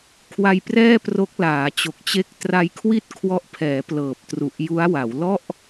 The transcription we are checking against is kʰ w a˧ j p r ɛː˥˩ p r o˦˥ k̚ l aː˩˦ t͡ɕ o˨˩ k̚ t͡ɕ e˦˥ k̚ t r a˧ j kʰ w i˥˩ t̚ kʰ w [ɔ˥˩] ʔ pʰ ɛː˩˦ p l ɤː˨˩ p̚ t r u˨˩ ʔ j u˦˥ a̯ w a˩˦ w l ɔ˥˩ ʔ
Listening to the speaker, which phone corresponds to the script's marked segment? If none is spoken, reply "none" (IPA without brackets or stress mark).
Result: ɔ˦˥